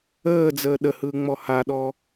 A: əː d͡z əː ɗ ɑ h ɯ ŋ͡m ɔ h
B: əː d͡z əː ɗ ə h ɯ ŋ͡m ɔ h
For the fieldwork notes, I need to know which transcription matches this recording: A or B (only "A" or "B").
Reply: B